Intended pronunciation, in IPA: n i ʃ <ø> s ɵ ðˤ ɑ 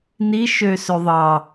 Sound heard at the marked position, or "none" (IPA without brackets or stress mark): ø